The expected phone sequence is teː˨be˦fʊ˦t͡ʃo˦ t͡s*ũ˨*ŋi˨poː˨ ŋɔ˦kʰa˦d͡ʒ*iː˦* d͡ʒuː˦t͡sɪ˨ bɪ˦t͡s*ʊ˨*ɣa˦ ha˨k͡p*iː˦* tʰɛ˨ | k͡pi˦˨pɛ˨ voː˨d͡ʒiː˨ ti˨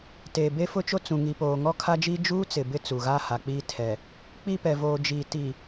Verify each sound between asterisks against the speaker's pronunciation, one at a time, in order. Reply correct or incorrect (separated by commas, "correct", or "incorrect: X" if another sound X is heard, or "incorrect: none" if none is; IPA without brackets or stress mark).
correct, correct, incorrect: u˨, correct